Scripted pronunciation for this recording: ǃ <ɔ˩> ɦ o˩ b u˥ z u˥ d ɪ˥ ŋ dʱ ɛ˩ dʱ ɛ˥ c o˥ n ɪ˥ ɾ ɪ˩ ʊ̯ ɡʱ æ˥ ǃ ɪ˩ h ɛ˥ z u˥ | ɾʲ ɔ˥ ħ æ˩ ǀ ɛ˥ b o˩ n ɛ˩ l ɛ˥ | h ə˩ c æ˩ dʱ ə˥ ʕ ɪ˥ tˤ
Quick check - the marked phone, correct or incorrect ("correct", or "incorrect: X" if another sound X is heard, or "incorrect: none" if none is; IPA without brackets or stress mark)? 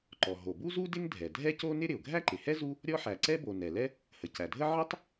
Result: correct